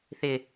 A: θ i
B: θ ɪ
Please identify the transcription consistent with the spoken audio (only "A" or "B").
B